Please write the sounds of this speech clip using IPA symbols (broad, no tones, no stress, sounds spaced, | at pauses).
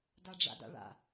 d a ɖ͡ʐ a̰ d a̰ ɭ a̰